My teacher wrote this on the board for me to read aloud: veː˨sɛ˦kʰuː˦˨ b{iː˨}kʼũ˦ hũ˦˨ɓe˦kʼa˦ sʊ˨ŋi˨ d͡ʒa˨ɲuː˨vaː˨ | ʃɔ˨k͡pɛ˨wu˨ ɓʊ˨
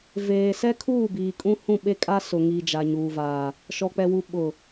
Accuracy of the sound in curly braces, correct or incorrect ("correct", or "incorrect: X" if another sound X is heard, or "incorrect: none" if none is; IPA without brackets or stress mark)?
correct